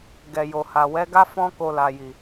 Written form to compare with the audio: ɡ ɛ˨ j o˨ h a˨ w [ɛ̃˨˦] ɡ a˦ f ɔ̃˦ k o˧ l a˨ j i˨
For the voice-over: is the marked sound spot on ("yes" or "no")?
no